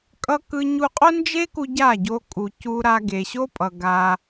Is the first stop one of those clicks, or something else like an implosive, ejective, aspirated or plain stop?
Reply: ejective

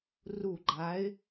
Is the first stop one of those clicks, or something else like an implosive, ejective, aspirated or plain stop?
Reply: click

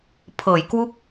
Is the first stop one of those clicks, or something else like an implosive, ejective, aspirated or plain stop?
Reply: aspirated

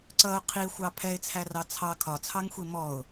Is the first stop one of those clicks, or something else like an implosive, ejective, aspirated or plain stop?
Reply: click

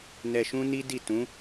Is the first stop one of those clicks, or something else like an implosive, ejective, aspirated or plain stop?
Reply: plain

